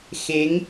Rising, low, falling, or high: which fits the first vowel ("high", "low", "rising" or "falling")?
rising